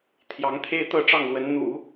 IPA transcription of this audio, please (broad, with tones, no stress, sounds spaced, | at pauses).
t̪ʰ j ɑ˧˥ ŋ t̪ʰ e˥ ɪ̯ t̪ ɤ˥˧ ʈ͡ʂ ɑ˥˩ ŋ l w ə˧˥ n n̪ ṵ˨˩˦